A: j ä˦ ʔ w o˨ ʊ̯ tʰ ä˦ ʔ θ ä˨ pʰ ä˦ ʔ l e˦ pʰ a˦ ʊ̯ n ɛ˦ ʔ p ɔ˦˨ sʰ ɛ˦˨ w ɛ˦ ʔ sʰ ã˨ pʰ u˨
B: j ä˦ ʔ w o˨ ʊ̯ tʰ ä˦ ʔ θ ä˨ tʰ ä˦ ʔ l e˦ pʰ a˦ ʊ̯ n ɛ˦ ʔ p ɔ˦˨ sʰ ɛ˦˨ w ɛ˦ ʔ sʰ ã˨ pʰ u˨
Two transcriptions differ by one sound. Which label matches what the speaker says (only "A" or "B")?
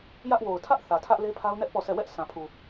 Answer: B